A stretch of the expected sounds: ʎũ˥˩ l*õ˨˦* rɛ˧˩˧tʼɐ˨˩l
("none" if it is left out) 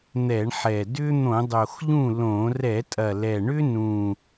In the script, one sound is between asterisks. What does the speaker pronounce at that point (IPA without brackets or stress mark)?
õ˧˩˧